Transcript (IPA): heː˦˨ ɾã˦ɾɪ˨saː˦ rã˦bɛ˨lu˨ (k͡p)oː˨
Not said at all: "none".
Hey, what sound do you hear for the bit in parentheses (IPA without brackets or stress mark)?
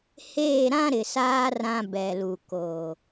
k